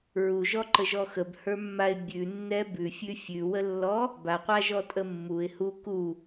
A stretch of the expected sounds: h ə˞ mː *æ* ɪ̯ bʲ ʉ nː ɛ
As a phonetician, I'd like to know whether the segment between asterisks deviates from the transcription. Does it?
yes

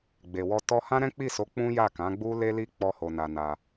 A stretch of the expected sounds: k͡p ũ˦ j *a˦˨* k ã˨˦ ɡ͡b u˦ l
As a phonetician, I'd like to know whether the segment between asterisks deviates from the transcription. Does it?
no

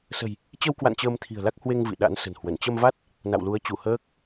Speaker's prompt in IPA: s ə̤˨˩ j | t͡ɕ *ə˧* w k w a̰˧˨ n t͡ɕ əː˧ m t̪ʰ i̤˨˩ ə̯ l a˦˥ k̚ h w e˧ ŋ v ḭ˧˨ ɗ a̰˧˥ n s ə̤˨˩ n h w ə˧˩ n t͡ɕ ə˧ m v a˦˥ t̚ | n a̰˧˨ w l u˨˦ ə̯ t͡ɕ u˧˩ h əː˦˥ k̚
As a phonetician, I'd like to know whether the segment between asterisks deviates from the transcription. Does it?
no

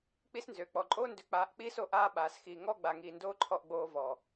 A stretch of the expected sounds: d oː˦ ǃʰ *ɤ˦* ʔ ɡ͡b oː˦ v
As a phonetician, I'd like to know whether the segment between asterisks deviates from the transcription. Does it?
yes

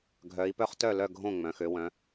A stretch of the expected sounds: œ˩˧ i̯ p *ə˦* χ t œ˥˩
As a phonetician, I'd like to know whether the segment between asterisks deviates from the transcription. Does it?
yes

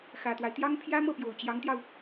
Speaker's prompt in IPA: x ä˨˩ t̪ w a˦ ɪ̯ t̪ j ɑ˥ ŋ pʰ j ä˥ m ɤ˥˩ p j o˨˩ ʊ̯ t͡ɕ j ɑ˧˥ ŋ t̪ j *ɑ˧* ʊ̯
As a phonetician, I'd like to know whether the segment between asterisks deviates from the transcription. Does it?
no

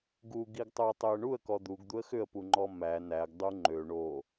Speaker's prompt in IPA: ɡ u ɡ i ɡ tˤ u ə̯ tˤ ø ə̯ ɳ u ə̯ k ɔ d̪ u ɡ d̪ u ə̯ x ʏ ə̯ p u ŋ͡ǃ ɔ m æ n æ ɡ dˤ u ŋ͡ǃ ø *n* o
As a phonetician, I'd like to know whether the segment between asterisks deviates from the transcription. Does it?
yes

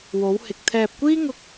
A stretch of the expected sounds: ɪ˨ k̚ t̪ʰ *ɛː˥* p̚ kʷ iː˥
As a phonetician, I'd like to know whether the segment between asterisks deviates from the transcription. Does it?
yes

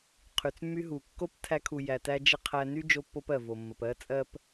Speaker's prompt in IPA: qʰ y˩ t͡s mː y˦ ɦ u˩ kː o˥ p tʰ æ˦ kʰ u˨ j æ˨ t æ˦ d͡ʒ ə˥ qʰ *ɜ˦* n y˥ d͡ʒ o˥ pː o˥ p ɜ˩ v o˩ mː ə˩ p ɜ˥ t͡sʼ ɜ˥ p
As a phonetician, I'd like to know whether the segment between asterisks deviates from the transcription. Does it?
yes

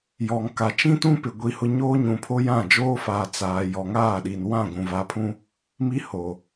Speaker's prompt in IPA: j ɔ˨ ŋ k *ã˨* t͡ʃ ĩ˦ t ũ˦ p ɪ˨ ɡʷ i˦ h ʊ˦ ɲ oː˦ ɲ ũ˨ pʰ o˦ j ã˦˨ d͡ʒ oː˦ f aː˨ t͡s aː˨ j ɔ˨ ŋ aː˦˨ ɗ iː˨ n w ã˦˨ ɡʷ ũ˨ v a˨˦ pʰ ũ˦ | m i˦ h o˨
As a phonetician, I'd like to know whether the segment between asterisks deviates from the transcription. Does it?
yes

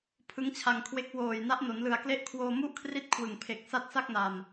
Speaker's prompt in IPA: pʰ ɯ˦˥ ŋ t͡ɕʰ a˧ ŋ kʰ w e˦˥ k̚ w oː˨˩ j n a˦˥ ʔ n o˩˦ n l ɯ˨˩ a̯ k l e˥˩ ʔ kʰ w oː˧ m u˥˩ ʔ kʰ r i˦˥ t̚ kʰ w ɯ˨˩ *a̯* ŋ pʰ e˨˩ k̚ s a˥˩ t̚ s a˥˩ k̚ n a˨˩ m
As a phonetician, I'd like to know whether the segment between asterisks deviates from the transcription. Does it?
yes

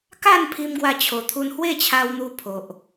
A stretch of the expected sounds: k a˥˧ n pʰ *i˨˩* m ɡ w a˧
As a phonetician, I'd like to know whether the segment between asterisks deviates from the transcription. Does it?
yes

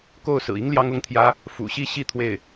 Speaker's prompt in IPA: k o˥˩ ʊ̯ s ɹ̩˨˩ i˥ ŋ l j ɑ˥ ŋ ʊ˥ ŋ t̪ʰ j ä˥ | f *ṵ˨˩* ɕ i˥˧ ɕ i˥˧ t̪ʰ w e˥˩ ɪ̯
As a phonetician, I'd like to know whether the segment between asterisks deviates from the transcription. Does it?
no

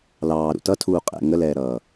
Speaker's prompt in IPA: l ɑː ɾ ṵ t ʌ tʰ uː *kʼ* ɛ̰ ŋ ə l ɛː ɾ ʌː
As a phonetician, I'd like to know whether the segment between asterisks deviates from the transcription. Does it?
yes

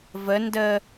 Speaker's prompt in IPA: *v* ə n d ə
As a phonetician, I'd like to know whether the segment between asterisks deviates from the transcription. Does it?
no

